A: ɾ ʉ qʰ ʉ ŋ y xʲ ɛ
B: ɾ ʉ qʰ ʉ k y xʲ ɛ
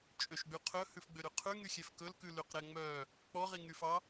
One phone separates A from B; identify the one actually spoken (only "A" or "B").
A